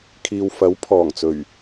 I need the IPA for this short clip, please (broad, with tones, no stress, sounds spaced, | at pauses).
kʰ iː˨ w f ɐ˨˥ w pʰ ɔː˨˩ ŋ t͡s ɵ˨˩ ɥ